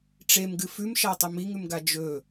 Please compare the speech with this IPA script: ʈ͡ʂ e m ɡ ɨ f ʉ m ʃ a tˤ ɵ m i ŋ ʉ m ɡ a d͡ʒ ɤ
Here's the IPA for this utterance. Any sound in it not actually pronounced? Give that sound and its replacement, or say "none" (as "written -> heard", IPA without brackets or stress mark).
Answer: ɤ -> ɵ